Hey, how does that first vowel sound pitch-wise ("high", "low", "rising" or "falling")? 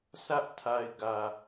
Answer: high